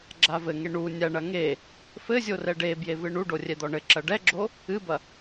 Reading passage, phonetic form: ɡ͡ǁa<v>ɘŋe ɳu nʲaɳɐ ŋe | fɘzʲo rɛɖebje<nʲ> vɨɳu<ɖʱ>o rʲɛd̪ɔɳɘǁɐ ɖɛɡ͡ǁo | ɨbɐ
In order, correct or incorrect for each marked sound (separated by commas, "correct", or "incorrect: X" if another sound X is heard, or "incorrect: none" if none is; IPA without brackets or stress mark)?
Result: correct, incorrect: none, incorrect: ɖ